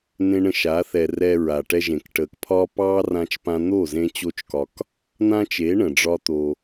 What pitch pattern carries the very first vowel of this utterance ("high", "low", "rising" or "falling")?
high